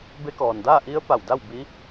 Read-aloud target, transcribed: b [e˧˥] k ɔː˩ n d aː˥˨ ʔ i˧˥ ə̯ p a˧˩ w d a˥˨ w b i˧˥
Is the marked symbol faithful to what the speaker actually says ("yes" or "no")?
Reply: yes